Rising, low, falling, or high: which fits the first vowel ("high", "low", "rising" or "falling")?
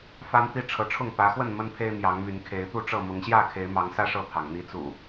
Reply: high